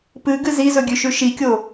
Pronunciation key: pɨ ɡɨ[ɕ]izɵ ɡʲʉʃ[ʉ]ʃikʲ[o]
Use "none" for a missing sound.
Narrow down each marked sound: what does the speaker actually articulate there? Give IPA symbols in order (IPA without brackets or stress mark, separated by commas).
z, ʉ, o